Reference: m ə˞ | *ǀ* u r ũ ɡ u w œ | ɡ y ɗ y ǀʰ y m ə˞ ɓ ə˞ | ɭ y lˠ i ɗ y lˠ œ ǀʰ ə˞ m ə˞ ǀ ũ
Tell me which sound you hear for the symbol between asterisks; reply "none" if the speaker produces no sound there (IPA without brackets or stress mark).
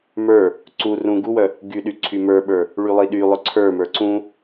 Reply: ǀ